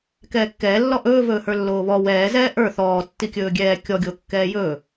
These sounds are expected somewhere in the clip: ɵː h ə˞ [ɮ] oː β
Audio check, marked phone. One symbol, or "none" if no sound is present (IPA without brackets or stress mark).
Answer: lː